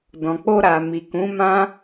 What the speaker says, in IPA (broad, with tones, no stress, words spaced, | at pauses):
dɔ̃˨k͡po˧ɾa˨mi˨ kũ˨˦mã˦